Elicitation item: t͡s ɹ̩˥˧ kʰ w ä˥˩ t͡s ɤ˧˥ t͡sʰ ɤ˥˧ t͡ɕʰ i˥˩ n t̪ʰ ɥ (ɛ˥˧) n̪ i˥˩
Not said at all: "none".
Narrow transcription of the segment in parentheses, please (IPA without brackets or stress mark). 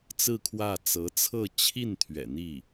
ɛ̰˨˩